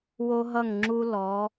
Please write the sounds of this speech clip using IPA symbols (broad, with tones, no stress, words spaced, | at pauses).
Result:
wo˧ɦʌ˧˩ŋ ŋ͡ǁu˧ lɔ˩˧